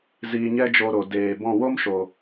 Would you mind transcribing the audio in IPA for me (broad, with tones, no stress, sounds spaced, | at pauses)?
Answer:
z iː˧ ɲ ɛ˦ d͡ʒ o˧ ɾ o˨ d eː˨ b ɔ̃˦˨ w o˦ m ʃ o˨